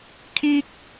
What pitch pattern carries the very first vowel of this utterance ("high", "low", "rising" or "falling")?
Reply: high